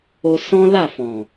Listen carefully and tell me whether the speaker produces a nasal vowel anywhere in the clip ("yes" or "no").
yes